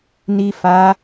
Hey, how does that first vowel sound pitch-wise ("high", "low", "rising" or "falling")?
low